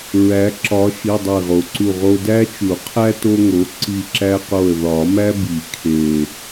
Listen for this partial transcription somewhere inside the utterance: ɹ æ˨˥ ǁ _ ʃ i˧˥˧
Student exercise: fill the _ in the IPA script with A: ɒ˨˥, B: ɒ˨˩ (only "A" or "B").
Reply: A